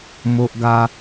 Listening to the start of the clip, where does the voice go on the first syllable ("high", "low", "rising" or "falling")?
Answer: high